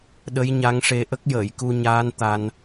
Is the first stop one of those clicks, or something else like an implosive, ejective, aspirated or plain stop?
implosive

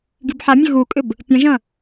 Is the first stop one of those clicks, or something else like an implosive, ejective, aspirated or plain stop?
plain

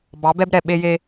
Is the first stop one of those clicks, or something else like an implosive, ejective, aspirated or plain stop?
plain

